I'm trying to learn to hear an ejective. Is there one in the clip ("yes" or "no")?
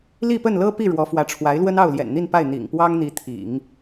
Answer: no